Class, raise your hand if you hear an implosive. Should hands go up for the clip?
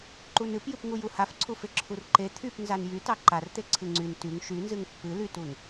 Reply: no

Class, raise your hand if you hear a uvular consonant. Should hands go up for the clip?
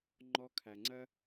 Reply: no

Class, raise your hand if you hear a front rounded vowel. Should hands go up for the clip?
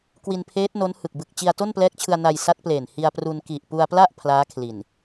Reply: no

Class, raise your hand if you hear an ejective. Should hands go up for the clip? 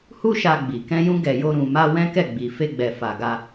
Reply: no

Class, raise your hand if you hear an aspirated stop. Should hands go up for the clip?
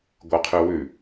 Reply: yes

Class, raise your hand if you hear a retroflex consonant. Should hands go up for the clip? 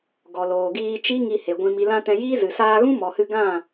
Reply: no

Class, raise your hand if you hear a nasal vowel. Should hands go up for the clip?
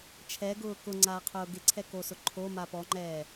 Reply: no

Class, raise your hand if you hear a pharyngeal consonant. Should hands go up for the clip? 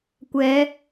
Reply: no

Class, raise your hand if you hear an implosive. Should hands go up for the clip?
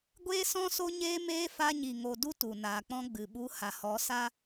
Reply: yes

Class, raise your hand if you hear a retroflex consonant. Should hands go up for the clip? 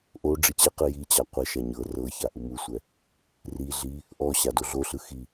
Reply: yes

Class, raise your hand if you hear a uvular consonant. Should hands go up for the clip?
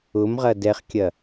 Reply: yes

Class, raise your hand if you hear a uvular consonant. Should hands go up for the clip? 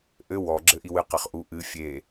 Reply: yes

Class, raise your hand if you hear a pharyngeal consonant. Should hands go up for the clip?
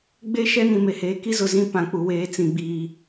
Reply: no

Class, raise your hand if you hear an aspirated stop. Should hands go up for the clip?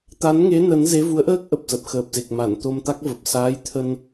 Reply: yes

